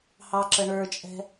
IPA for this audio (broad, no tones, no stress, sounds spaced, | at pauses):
h ɑ ǁ ə ɳ ə˞ t͡ʃʼ ɛ̤